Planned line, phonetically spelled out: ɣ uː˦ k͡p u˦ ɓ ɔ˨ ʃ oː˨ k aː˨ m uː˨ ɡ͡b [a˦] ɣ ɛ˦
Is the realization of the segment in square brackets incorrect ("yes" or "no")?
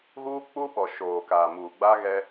no